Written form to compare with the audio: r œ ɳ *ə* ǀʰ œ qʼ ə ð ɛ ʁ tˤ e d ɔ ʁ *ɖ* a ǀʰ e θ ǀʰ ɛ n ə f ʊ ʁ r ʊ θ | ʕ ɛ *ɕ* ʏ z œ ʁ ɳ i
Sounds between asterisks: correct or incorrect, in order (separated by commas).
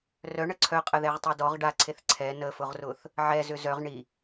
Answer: correct, correct, incorrect